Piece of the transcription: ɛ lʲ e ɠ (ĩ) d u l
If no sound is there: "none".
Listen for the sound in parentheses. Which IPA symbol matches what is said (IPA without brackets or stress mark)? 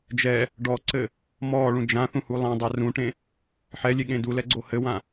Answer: ẽ